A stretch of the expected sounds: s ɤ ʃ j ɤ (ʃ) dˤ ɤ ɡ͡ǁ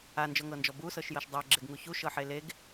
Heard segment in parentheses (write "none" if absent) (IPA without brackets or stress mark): ʃ